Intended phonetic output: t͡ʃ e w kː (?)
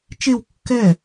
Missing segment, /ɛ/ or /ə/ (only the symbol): ɛ